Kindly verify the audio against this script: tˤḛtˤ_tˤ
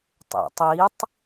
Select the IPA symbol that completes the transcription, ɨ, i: i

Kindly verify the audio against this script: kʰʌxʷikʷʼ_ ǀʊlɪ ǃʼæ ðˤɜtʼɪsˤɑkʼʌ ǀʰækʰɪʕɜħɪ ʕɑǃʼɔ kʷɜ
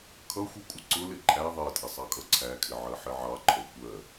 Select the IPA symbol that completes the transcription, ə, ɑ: ə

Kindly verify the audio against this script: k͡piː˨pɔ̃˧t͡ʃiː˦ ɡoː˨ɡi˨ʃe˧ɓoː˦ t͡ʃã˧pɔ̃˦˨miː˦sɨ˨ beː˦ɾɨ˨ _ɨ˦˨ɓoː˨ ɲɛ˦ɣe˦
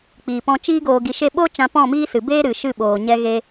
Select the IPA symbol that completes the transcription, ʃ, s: ʃ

